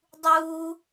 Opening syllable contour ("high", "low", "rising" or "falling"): high